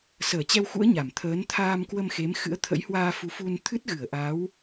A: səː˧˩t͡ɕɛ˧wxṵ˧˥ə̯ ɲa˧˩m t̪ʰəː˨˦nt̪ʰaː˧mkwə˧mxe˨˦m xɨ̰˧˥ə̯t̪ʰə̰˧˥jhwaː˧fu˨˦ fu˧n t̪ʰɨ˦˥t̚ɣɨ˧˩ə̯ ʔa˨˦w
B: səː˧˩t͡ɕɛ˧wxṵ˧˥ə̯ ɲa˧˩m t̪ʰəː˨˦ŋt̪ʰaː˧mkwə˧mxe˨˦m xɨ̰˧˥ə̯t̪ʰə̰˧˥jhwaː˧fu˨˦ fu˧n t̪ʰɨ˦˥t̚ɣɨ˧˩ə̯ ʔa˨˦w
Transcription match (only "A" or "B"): A